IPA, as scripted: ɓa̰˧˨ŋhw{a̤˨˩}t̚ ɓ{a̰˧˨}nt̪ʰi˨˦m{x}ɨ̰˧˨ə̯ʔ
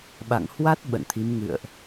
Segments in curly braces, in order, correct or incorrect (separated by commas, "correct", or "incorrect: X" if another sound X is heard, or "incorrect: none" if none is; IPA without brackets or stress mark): incorrect: a˦˥, incorrect: ə̰˧˨, incorrect: ŋ